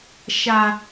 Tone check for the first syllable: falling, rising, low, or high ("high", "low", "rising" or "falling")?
low